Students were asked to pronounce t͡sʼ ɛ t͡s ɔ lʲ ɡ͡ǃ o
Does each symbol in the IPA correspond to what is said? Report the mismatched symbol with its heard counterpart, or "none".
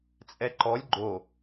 t͡s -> ǃ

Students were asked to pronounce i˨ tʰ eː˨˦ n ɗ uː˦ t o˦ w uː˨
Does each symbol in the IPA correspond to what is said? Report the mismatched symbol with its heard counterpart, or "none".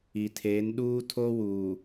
t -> tʰ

